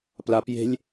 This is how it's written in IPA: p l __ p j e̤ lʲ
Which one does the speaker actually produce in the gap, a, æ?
a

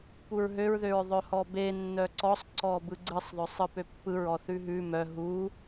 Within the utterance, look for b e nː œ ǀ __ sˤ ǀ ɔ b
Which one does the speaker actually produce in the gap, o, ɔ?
ɔ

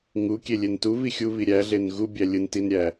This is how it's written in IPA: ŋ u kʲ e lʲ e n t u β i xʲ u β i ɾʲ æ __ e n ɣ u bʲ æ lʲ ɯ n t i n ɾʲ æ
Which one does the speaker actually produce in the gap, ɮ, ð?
ɮ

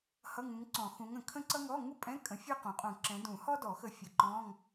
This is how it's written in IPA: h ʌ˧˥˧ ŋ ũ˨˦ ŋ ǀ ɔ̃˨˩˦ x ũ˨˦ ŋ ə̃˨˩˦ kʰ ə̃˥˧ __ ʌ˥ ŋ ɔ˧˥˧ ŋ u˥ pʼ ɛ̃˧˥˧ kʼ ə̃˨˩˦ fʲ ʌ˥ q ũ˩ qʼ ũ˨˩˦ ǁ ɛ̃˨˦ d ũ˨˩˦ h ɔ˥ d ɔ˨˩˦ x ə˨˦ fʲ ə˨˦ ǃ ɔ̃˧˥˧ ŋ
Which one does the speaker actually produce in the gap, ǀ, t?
ǀ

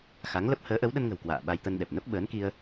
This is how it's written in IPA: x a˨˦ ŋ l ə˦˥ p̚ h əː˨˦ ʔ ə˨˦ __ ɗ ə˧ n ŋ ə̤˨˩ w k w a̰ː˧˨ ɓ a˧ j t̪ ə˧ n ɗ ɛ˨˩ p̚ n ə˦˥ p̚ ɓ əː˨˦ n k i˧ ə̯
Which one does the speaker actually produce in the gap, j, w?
w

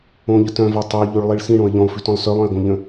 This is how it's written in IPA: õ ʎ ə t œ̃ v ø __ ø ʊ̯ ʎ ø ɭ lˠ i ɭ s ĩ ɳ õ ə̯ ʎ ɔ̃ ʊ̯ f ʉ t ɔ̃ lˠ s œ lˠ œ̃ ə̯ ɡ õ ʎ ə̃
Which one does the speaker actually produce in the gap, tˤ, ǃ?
tˤ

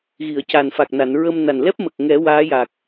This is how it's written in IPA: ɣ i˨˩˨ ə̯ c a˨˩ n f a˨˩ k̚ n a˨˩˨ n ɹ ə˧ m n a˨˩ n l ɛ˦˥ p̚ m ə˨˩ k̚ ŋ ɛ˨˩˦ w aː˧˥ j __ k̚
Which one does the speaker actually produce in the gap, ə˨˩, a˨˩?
a˨˩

